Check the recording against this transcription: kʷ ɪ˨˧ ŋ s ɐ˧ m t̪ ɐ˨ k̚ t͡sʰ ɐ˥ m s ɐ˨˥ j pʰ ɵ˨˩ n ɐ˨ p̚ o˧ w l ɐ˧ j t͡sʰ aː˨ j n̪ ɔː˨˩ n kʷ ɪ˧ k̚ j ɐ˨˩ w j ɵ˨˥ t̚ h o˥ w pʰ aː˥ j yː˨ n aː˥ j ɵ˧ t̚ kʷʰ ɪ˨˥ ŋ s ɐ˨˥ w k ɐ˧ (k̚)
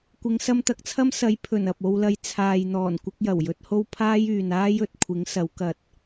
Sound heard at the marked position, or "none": t̚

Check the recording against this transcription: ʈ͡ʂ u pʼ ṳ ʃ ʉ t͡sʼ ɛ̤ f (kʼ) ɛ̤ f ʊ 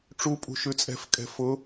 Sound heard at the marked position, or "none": kʼ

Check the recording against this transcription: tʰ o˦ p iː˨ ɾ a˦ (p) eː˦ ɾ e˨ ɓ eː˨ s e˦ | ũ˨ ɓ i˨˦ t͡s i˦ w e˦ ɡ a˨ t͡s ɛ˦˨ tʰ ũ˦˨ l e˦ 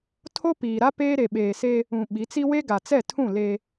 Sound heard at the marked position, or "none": p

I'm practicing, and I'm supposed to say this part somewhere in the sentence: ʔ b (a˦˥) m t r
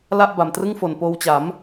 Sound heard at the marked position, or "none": a˨˩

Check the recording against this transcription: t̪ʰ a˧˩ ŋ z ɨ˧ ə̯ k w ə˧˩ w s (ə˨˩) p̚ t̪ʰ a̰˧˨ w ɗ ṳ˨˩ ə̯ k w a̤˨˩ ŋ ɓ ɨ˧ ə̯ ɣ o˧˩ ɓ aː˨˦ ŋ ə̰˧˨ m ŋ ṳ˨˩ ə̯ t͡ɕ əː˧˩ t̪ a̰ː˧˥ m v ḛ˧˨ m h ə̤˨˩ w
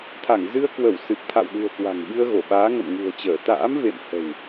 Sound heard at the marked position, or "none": ɨ˨˩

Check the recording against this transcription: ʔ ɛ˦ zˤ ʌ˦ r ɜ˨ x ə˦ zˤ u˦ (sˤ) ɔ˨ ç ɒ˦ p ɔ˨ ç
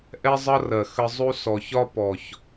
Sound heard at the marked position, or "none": s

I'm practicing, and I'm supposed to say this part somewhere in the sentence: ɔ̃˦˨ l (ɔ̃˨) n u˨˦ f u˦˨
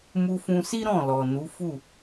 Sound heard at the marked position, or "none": ɔ˨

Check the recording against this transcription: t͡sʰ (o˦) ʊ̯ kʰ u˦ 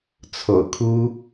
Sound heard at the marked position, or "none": o̰˨˩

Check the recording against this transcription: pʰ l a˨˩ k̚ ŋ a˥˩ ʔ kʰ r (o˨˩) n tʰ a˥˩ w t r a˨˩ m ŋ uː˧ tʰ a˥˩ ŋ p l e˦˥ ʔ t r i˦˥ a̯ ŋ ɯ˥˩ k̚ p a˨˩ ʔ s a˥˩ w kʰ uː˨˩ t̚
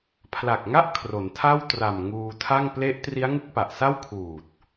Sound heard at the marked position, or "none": o˩˦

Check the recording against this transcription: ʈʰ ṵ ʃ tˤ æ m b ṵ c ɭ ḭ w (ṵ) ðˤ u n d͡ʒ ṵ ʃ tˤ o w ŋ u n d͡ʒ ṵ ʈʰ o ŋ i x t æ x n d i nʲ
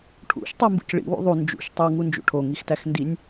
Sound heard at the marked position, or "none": ṵ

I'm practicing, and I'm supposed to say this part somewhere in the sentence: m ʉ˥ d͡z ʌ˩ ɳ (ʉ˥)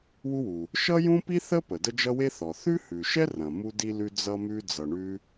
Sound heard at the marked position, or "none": ʉ˥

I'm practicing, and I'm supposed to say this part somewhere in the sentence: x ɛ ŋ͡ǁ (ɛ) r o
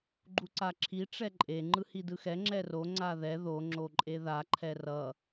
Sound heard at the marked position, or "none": ɛ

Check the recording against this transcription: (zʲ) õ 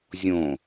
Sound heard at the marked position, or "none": zʲ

